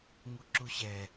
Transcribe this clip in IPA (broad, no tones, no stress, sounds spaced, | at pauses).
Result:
ŋ u ǁ u ɕ ɛ